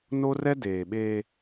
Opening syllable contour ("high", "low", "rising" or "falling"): high